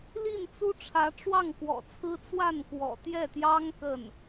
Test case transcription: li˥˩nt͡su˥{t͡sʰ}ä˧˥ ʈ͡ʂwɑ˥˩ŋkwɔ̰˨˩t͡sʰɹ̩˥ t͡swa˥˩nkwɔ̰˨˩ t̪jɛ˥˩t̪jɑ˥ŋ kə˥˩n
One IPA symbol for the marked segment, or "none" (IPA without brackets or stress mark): ʈ͡ʂʰ